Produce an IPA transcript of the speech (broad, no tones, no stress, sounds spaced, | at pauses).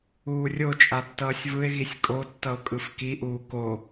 uː rʲ o t͡ʃʼ a tː ʌː sʲ v ɯ e̯ ɣ i sʲ kʼ o tː ʌ o̯ kʼ ɯ f k i ʔ uː k o